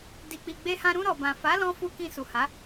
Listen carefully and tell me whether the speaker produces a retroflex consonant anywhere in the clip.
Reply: no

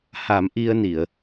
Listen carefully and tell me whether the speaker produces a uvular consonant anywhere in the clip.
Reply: no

